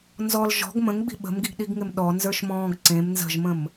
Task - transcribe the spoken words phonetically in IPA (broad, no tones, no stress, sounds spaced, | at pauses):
n z ɔ l ʒ ɔ̤ ɡ m ə̃ ŋ ɡ͡b i̤ ɓ ə̤ m ɡ i ɡ ɗ i ɡ ŋ ɪ m ɗ ɔ n z ə˞ ʃ m ɔ̃ː ɡ ǀ ẽ m n z ə̤ ʒ m ə̃ m